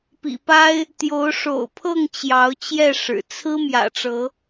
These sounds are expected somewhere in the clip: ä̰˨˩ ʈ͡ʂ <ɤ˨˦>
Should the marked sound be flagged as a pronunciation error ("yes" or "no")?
no